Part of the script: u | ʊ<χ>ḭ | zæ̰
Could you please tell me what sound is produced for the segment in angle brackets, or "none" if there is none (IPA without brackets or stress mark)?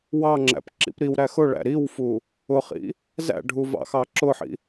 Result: χ